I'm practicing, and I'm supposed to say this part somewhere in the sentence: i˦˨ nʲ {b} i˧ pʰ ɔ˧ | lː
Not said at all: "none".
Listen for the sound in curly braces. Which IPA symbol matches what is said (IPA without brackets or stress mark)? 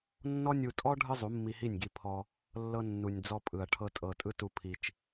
ɡ